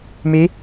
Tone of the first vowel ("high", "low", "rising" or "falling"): rising